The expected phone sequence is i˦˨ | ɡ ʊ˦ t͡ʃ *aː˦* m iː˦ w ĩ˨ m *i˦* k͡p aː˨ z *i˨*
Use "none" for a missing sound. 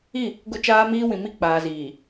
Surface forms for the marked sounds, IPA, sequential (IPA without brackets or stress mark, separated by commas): aː˦, i˦˨, iː˨